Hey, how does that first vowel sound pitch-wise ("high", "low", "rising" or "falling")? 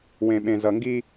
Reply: low